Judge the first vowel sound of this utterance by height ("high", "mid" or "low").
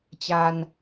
low